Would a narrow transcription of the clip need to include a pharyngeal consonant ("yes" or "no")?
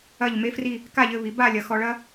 no